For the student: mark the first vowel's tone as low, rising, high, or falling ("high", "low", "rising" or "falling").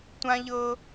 high